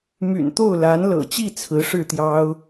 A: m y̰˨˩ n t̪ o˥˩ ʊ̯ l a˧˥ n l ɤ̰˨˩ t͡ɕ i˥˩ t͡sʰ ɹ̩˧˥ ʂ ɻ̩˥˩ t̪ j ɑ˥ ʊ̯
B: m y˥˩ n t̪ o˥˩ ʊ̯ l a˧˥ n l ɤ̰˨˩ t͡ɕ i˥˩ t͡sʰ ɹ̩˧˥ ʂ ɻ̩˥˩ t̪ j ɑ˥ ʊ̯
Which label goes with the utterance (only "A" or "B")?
A